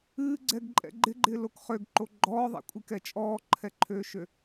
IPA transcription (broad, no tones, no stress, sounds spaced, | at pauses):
ɨː ɡ͡ǀ ɛ ɡ ǃʼ ɛ̰ ɡ͡ǃ ɪ ɡ͡ǃ ɪː l o k χ ø ɡ ǃ o ɡ͡ǃ ɔː ðˤ ɛ̰ kʷʼ i k ɛ t͡ʃʼ ɔː ǃʰ ɛ ǃʰ øː ʃ ø